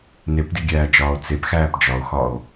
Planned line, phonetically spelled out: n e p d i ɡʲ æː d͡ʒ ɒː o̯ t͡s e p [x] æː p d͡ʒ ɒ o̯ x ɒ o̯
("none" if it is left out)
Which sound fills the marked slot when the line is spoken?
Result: x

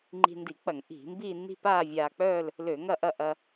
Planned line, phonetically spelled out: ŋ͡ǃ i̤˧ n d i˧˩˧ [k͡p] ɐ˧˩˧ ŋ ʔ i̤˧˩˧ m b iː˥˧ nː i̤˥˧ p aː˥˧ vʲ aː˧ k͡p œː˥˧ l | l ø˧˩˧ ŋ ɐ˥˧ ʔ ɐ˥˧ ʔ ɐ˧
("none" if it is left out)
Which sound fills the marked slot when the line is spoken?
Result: k͡p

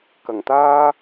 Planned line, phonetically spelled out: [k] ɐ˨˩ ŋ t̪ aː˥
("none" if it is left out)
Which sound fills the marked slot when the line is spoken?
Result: k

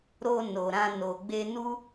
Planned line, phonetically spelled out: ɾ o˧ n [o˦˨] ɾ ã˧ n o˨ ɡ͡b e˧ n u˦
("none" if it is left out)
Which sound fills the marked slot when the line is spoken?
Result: o˨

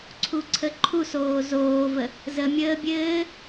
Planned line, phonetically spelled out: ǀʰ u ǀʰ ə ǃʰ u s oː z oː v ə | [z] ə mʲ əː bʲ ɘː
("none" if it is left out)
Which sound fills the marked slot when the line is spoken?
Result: z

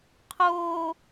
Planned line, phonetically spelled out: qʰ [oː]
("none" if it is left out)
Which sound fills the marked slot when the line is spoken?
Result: oː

